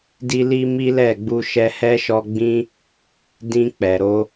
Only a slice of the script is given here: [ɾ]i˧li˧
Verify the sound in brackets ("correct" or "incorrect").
incorrect